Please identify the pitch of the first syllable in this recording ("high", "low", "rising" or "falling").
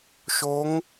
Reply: rising